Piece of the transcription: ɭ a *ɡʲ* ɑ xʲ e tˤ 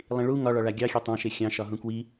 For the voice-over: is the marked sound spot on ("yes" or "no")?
yes